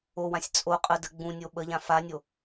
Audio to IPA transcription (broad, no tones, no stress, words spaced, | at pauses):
owãsʲ t͡sʼo qʼədə ɡ͡bũnʲo ɓəʎã fanʲo